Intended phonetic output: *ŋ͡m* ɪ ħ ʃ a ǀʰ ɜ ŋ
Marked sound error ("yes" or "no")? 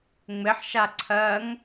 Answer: no